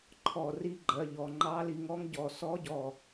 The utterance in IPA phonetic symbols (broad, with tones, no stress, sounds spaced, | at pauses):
ǃʰ ɔ˧˩ r i˧˥ ɡ͡ǃ ɜ˩˧˩ ʎ ɔ˧˩ ŋ͡ǃ ɑ˧˥ l i˧ ŋ ɔ˧˥ ŋ ɟ ɔ˧˩ s ɔ˧˥ ɟ ɔ˧˩